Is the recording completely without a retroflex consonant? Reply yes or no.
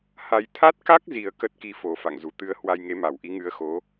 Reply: yes